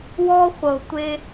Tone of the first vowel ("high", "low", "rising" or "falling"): high